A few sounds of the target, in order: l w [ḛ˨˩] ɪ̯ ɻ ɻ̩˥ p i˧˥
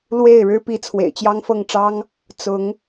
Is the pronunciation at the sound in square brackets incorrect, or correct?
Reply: incorrect